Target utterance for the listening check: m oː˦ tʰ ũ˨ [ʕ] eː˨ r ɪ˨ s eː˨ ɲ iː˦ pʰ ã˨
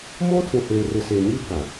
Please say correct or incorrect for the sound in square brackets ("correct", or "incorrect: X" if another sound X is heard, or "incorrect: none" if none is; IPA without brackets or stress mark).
incorrect: h